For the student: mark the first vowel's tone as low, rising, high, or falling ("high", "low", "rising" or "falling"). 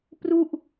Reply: falling